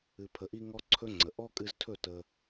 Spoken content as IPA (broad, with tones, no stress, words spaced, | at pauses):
ɨ˨pʰə˨ʔi˧ ŋɔ˦ǀʰɵ˦ŋ͡ǀə˨ ʔɔ˦kʼɨ˧ztʰɵ˦˨ tə˧